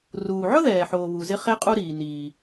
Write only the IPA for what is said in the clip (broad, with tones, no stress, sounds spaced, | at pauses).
r uː˩ ʕ ʊ˦ ð ɛː˩ ħ oː˩ β u˩ z ɪ˦ χ e˦ qʼ u˦ ɾ iː˩ n iː˩